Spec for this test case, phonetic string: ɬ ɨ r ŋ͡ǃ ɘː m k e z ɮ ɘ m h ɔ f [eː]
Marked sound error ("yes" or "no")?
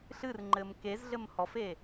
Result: no